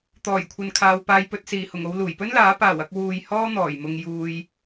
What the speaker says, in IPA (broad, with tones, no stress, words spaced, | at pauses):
t̪ɔː˨˩jkʷʰɐ˨nkʰaː˨w paː˨jpɵ˨t̚siː˨˩hʊ˨˩ŋ o˧w luː˨˩jpɵ˥nlaː˨˥ paː˨˩wɐ˧k̚ wuː˧j hɔː˥n̪ɔː˨˩jmʊ˧ŋ juː˨j